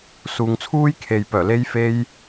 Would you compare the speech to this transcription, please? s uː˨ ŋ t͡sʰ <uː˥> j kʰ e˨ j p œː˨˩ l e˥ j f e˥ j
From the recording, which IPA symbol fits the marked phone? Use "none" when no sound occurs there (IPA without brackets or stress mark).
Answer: uː˥